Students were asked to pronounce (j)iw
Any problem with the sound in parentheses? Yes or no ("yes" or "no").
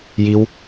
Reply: no